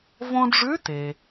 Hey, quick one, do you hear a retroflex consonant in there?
yes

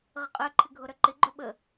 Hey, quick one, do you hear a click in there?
yes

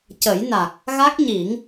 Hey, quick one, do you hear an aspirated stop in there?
no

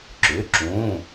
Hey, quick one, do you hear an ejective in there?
no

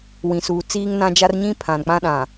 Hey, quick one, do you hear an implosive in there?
yes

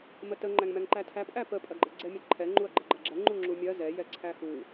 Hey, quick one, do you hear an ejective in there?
yes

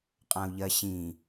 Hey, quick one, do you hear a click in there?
no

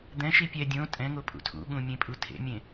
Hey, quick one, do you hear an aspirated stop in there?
yes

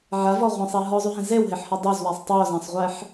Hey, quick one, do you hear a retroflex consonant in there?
no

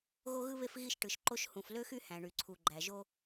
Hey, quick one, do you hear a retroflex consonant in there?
yes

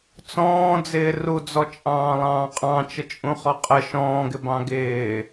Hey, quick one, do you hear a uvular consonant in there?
yes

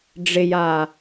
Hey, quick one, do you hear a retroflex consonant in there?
yes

